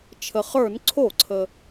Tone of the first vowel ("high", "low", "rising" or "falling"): low